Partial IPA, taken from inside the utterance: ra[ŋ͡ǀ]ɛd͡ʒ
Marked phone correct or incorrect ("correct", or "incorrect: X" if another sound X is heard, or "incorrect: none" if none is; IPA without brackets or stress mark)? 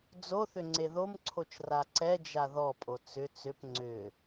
incorrect: ǀ